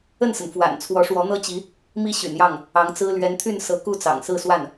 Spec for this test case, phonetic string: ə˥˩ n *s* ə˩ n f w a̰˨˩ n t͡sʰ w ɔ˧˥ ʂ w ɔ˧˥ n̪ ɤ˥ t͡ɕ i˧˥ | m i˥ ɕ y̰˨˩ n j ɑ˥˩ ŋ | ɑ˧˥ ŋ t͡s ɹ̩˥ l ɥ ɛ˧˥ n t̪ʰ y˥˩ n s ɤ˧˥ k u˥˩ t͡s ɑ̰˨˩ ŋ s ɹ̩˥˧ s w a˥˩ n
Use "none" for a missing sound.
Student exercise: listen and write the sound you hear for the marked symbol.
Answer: s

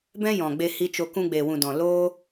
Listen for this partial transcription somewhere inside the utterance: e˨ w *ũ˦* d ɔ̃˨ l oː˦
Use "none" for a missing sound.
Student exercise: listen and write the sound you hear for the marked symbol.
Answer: ũ˨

